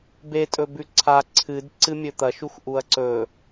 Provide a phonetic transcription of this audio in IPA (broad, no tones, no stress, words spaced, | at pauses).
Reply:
betʼɵ bʉǀʰa ǀʰɨd ǀɨmʲɵt̪ɐʃux ʔuɐ̯ǀɵ